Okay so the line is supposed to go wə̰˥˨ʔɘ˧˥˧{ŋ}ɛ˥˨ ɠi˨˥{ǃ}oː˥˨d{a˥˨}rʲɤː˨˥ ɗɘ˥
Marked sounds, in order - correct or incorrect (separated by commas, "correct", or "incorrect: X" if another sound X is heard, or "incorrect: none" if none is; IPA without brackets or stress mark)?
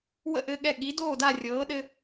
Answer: incorrect: ɠ, incorrect: d, correct